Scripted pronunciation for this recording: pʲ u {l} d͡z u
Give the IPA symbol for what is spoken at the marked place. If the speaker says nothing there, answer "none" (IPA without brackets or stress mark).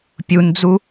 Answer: n